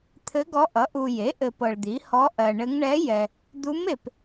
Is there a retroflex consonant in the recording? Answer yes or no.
yes